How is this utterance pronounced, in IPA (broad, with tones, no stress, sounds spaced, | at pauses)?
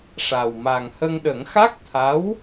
ʂ a˨˩ w m a˨˩ ŋ h ə˧ ŋ ɗ ə˨˩˦ ŋ x a˦˥ k̚ t̪ʰ a˧˥ w